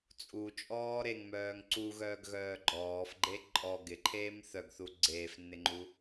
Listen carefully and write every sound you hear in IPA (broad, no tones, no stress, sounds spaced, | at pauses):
t͡sʼ u t͡ʃʼ ɔː ɾ e ŋ m œː ŋ ǀ u ɣ œː ɡ ɣ œː ɡ͡ǃ ɔː f ɡ͡ǃ e ǃʼ ɔ ɡ ɪ ǃʰ eː m θ œ ɡ θ u ɡ͡ǀ eː f nː ɪ ŋ͡ǃ u